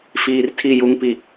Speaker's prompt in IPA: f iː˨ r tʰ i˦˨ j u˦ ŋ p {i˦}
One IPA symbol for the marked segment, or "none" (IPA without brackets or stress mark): i˨